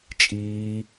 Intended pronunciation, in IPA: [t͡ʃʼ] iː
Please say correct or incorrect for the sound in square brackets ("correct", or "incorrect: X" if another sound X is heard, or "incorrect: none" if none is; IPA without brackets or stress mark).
correct